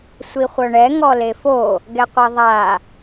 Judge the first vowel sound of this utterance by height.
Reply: high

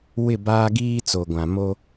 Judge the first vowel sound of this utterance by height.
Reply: high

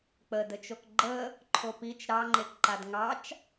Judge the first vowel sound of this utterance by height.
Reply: mid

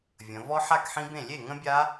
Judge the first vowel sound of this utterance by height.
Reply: mid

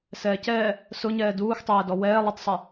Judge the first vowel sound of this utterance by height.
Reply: mid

